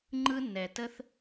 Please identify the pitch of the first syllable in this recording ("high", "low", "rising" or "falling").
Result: high